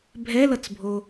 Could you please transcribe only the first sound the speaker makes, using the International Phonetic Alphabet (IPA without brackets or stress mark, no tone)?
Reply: bʱ